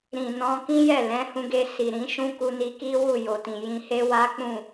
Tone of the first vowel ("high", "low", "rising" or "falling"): low